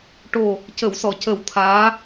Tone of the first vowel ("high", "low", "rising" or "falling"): low